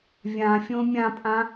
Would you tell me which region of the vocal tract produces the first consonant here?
lips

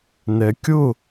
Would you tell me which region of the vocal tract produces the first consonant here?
tongue tip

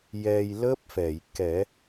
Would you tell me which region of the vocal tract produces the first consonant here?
palate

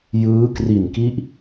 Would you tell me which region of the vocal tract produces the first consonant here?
palate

